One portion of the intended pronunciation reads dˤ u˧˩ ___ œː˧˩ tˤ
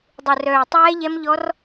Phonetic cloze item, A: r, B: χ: A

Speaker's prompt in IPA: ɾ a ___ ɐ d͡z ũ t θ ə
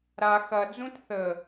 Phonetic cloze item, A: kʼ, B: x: B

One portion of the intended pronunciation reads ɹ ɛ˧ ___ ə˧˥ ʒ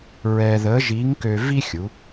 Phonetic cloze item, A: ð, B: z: A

